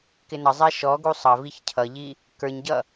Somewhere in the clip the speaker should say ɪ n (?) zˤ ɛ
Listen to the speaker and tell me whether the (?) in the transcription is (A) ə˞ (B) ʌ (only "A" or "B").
B